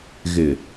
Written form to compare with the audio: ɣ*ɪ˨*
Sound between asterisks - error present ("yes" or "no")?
no